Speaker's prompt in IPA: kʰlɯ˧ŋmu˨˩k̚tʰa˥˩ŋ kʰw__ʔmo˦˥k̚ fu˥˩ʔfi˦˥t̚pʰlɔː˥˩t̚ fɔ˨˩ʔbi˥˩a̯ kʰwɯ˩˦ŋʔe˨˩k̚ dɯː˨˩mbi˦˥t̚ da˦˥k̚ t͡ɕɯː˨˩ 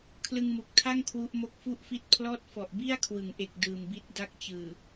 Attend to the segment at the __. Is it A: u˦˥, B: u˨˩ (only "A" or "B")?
A